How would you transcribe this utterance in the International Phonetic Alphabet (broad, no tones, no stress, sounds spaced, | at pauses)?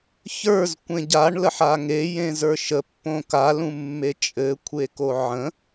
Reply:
ç ə˞ z kʷ ẽ ɟ a ɳ l ə ħ a ŋ e j ẽ z ə˞ ʃ ə pː õ k a l ũ mː e t͡ʃʼ ɘ kʷʰ e k o ʕ ə̃